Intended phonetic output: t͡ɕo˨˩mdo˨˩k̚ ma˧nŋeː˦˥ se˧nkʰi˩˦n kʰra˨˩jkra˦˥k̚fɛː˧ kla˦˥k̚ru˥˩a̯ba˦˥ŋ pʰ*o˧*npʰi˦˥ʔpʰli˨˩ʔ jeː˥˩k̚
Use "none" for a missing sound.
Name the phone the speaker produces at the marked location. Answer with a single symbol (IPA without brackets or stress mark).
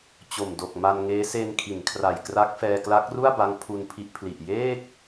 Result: u˧